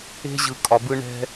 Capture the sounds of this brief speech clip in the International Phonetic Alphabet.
e̤˦ʑɯ˩ kʼɒ˩bɯ˦ ɳɛ̤˦

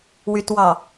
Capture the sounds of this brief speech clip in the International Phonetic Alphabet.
wytwɑ

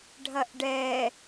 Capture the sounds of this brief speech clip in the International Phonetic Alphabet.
ɖʱɐʔɖɛ

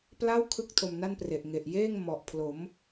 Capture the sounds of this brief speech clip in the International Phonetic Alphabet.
pla˥˩wkʰɯ˦˥k̚ tʰo˧mna˥˩npre˨˩ʔ ŋe˨˩ʔjeː˥˩ŋ mɔ˨˩ʔpʰlo˩˦m

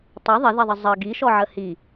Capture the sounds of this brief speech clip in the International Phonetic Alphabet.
tˤɪ ðˤɪðiðˤə zˤə ɡiʃɔʕə hi

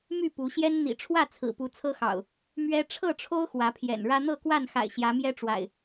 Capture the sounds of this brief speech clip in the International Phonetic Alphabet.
my˥˨ pu˨˦ ɕjɛ˦n n̪ḭ˨˩ʈ͡ʂʰwä˥˨ t͡sʰɹ̩˨˩pu˨˦t͡sʰɤ˦xɑ̰˨˩ʊ̯ | mɥɛ˦ ʈ͡ʂʰɤ˥˨ʈ͡ʂʰo˦ʊ̯ xwä˨˦pʰjɛ̰˨˩nɻä˦ n̪ɤ˥˨kwa˥˨nxa̰˨˩ɪ̯ ɕjä˨˦mjɛ˦ʈ͡ʂwa̰˨˩ɪ̯

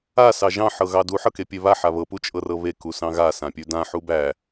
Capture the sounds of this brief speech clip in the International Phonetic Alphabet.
a sɑʒɑ̃ ħɤɣɑdu ħɤkepʲeβa ħaβɤ put͡ʃʼɤrɤβe kusɑ̃ɣa sãpʲʉdã ħubæ

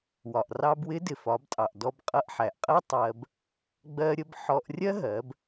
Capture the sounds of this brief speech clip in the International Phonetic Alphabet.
wɒ˩ʔrɑ˧bwɪ˧˥ dɪ˩fɒ˩˧btʼɑ˩ʔ dɔ˧b qʼʌ˧ʔħæ˩ʔqʼɜ˥ tˤɜ˧b | ɡ͡bɜ˧ɾʲə˧b ħɔ˧ʔrʲɜ˥ɦɜ˩˧b

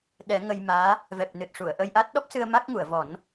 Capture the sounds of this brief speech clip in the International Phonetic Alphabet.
ɗɛ˨˩˦ ŋə˧jmaː˧˥ | vɛ˨˩p̚nɨ˨˩t̚ ʂu˨˩˨ə̯ ʔə˧jʔa˦˥t̚ ɗɔ˦˥p̚sɨ˧ə̯ ma˦˥k̚ŋu˨˩˨ə̯vɔ˨˩˦n

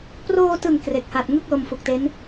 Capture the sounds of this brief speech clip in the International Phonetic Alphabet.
proː˧tɯ˨˩ŋ kre˨˩k̚ha˨˩t̚ ŋɯ˥˩k̚lo˧m fu˨˩k̚te˦˥n

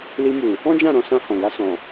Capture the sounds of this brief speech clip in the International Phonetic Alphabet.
li˧mu˨ | ɔ̃˦d͡ʒã˦˨ɾɔ̃˧ sã˧hɔ̃˨ɡa˧ sɔ̃˨

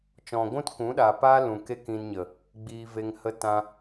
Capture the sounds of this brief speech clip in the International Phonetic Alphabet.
t͡ʃɔ̃˨ɡʷũ˦t kũ˨˦ɗa˨paː˦ lũ˨ke˦ kĩ˧nɲə˨ | ɡ͡biː˧ve˧ŋ hə˧tã˧

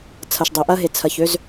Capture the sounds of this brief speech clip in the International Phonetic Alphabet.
t͡sʰɐ˨ʃdˤø˨ʔɐ˦ɦe˨ t͡sʰɐ˨çø˦z

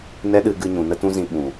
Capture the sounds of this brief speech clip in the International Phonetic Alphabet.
nɛ˦ɗɨ˧ɡɨ˧ɲũ˨ nə˦tũ˦zĩ˧ ɓũ˨

